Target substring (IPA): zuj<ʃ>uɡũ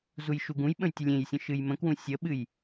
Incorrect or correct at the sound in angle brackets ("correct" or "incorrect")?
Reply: correct